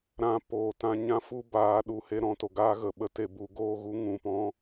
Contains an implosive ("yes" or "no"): yes